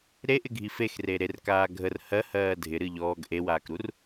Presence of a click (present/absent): absent